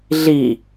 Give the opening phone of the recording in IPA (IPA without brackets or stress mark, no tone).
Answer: ɮ